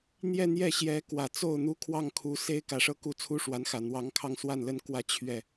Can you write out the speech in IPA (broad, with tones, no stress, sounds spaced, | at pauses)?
n̪ j ɛ˥˧ n̪ j ɛ˥˩ ɕ j ɛ˧˥ k w ä˨˩ t͡s o˥˩ ʊ̯ n̪ u˥ kʰ w ɑ˥˩ ŋ kʰ u˧˥ s e˥ ɪ̯ k ä˨˩ ʂ ɤ˥˧ k u˥˩ t͡sʰ u˥ ʂ w a˧˥ n x ä˨˩ n̪ w ɑ˧˥ ŋ kʰ ɑ˥˧ ŋ s w a˥˩ n l ə˥ n k w ä˥˧ t͡ɕʰ ɥ ɛ˥˩